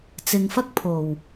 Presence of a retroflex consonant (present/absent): absent